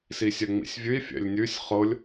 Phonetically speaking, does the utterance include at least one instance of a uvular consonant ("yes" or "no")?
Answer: yes